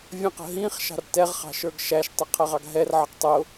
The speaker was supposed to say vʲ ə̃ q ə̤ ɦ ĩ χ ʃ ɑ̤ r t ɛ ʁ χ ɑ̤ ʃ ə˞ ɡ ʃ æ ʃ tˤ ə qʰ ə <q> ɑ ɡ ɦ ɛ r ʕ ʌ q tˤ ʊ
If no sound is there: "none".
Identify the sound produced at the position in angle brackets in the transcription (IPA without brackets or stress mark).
ʁ